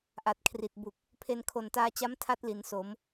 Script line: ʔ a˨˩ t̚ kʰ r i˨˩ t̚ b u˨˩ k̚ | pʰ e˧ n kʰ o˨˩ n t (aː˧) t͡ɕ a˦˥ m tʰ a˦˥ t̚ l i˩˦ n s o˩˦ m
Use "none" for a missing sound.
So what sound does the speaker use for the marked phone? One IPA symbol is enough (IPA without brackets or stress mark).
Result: aː˧